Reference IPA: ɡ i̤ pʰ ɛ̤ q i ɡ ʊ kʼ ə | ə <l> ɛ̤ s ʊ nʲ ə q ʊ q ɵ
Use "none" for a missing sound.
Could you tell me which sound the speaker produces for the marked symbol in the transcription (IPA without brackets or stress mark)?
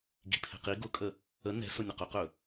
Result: n